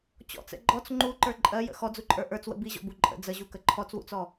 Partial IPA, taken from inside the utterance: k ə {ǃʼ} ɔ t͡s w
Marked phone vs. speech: incorrect: ǃʰ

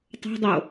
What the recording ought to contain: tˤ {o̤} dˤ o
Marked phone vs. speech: correct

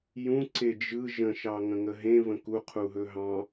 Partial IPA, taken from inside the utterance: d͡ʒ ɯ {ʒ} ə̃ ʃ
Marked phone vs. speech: correct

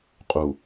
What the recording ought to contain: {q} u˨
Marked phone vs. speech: incorrect: qʼ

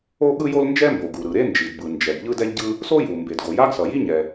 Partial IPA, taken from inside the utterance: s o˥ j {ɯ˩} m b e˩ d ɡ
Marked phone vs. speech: incorrect: u˩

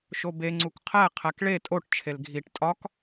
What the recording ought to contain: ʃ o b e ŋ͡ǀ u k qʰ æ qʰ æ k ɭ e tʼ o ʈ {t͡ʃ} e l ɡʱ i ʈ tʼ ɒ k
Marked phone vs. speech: incorrect: t͡ʃʰ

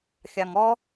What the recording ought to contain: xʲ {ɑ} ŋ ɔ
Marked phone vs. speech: correct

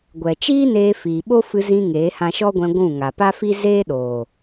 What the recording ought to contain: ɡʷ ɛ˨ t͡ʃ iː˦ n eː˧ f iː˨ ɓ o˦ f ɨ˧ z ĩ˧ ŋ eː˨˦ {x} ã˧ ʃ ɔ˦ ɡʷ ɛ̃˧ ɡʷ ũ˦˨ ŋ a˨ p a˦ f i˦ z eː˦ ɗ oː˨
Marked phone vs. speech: incorrect: h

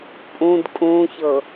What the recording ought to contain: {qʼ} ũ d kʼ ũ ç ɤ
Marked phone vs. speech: incorrect: pʼ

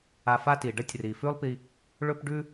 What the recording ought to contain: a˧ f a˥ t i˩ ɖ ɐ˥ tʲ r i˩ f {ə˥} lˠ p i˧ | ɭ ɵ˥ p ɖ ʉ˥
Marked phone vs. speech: incorrect: ʉ˥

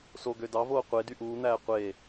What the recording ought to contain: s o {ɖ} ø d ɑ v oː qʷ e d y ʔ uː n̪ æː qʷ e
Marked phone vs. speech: incorrect: ɡ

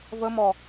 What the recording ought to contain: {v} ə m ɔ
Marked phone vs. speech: correct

